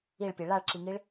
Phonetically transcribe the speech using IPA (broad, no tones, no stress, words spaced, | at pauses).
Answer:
iɭpʲe ɭaɭǁiŋiɭ